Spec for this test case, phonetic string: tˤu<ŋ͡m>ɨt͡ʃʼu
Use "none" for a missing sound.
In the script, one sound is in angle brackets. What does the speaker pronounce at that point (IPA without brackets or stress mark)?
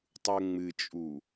ŋ͡m